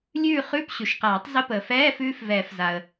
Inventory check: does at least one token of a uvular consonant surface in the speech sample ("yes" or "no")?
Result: yes